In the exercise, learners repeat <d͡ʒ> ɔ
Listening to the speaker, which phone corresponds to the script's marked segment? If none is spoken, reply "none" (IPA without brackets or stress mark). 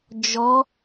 d͡ʒ